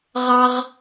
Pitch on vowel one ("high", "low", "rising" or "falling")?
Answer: low